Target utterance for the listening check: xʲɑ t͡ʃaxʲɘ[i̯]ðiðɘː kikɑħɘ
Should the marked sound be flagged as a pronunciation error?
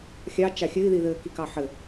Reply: no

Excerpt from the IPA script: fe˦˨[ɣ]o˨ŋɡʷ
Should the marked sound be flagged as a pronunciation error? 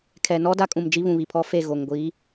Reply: no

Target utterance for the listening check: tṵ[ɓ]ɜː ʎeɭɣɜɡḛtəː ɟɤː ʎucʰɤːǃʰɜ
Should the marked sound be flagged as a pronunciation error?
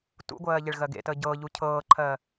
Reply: yes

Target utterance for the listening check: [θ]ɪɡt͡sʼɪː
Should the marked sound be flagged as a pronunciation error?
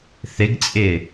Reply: no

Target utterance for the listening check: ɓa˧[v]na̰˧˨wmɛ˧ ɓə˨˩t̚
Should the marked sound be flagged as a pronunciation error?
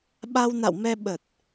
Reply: yes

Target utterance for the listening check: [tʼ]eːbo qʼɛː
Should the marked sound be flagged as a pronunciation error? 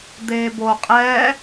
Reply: yes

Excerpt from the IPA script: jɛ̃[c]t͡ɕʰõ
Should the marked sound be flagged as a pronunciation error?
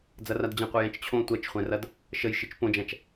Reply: yes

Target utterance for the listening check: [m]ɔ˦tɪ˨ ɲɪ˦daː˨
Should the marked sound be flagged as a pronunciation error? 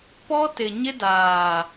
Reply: yes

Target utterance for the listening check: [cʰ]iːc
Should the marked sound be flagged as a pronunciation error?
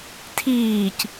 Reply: yes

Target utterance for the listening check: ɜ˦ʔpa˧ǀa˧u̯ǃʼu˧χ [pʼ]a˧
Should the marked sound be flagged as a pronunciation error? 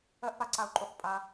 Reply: no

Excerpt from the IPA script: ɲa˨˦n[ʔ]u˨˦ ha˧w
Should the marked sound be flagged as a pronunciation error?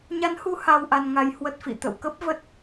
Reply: yes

